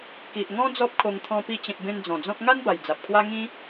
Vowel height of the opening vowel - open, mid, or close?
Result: close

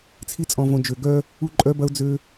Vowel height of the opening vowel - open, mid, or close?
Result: close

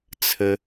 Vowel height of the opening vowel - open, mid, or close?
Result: mid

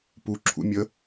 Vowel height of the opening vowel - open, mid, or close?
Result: close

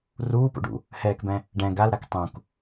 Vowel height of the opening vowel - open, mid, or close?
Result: close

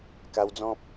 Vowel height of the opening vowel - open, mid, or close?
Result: open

